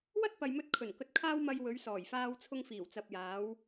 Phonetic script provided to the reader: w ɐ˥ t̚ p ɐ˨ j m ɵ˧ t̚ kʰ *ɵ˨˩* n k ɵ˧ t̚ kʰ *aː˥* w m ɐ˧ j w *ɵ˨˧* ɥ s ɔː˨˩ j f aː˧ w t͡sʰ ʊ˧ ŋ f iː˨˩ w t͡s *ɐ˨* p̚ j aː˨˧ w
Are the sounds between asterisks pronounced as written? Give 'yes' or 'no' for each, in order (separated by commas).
yes, yes, yes, yes